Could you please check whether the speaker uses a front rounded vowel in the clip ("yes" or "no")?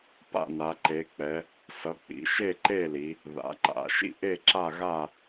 no